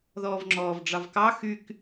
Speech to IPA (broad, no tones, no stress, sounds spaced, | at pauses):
ð ɔː v ŋ͡ǁ ɔː v ɖ͡ʐ ɑ v k ɑ x y k